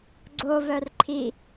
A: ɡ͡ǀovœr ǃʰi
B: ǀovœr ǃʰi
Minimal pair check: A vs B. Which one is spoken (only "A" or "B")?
A